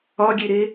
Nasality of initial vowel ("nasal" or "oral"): oral